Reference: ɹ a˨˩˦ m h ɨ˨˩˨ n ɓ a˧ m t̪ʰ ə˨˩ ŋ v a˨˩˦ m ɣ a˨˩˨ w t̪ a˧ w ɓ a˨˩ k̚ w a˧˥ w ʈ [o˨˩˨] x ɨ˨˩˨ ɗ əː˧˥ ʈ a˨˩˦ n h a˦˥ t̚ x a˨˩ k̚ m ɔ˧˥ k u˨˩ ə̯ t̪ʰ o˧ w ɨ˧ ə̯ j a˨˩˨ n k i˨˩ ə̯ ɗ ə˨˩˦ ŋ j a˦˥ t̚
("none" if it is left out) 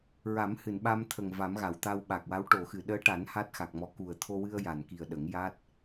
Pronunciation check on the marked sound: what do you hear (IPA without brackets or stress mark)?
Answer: o˨˩˨